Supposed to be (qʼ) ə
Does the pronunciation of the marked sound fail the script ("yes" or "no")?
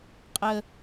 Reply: no